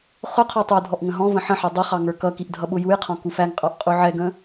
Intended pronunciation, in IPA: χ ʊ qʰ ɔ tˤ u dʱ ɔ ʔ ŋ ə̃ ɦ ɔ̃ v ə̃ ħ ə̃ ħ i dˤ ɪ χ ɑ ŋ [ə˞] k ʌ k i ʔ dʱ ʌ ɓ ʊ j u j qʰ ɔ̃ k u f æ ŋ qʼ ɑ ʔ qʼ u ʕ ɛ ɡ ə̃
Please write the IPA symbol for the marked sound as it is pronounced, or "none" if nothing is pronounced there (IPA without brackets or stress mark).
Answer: ə˞